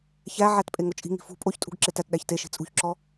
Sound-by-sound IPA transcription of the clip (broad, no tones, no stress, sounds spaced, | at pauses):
ç æ ʕ æ t pʼ e ŋ o t͡ʃʼ i̤ ŋ i̤ f ṳ pʼ o ç tʼ ṳ ɡ ǁ e t æ t ɗ æ ç t e ʃ i̤ t͡sʼ ṳ ç ǁ ɔ